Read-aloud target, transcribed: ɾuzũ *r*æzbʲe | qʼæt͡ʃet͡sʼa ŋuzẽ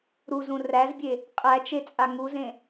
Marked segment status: correct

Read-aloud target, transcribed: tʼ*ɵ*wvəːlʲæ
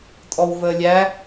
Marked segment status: incorrect: ɔ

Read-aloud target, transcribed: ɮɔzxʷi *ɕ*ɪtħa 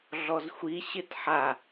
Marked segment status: correct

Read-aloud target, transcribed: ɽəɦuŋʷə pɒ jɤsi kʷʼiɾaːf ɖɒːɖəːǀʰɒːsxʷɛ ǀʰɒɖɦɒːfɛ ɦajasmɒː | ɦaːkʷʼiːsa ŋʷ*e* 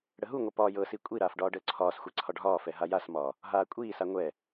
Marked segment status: incorrect: ɛ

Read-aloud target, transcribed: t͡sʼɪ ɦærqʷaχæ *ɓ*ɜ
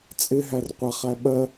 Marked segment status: correct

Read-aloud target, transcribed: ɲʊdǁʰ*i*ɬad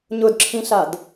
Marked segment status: incorrect: ĩ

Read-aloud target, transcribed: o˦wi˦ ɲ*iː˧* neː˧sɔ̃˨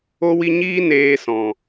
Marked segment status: incorrect: iː˦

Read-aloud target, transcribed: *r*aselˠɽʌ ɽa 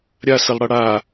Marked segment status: incorrect: ɾʲ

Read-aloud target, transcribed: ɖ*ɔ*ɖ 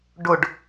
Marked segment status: incorrect: ʊ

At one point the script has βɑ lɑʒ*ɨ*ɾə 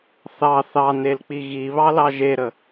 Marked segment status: incorrect: e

